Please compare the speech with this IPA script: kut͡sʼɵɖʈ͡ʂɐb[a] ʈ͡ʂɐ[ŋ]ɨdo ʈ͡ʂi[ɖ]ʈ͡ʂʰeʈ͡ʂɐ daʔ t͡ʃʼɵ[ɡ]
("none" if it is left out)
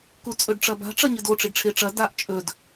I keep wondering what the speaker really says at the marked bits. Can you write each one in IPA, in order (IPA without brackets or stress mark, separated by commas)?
a̤, ɲ, ɖ, d